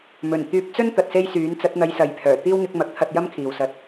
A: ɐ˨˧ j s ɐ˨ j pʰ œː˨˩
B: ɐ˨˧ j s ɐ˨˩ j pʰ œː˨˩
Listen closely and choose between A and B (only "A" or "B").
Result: A